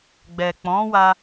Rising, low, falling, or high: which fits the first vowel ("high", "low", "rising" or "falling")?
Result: low